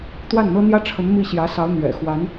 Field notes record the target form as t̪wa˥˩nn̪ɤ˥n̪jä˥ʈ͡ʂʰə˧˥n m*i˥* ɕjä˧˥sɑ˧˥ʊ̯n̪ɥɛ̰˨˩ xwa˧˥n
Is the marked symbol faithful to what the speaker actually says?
no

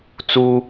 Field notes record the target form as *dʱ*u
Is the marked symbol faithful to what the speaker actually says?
no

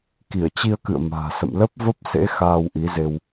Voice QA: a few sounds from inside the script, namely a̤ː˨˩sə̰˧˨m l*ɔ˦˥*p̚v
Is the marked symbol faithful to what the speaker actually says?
no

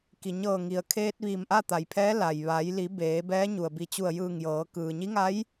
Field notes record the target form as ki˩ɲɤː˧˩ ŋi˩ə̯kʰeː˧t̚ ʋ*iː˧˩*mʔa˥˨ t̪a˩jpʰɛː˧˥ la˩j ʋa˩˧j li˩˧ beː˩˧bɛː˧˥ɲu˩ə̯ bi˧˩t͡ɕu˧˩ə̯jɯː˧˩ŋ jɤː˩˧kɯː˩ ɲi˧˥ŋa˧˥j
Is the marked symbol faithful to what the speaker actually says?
yes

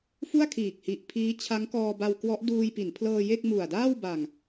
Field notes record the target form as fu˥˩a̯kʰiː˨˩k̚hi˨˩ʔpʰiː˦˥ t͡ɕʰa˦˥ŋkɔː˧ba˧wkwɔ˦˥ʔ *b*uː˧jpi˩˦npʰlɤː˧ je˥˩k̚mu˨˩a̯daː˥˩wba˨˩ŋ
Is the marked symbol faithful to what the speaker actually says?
no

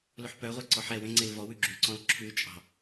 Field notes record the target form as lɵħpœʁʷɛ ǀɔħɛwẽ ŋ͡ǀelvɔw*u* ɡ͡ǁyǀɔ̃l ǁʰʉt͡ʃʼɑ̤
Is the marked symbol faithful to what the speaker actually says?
no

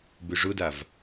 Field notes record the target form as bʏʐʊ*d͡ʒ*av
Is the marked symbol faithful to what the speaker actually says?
no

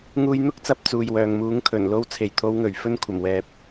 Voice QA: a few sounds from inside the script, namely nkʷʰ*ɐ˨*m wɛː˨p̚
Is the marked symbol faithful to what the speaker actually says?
no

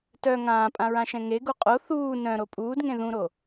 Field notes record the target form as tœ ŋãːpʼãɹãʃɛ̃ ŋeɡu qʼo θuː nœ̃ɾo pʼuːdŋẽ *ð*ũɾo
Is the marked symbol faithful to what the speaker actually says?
yes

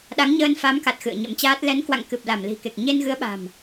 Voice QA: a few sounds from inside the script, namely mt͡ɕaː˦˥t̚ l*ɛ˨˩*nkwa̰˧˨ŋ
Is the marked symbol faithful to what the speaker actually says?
no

